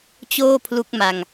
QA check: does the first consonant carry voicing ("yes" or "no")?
no